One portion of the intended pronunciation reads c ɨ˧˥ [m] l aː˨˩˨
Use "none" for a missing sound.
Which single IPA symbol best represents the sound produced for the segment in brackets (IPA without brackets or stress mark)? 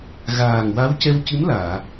m